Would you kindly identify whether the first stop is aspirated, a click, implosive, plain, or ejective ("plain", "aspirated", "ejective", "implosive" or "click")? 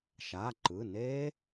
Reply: click